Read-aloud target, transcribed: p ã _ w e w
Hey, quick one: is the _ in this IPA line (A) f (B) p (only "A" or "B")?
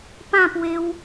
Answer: B